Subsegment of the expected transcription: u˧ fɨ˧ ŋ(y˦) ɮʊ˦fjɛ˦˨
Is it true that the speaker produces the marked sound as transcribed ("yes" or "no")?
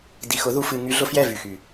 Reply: yes